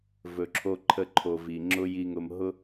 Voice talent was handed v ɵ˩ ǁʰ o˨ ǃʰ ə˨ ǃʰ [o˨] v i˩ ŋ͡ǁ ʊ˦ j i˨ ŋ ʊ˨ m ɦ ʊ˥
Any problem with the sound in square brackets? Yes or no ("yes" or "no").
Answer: yes